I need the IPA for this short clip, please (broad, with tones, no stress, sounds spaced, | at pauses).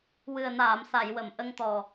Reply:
w ɨ˨˩ ə̯ n aː˨˩˨ m s a˨˩˨ j w ə˨˩˨ m ʔ ə˧ ŋ t̪ ɔ˨˩